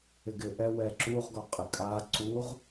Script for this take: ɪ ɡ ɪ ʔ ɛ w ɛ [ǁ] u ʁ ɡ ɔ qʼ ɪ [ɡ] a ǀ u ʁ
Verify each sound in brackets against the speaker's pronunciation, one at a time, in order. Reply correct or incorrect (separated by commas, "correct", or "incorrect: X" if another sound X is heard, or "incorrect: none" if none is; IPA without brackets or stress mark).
correct, incorrect: kʼ